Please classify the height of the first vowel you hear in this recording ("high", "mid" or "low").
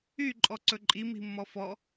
high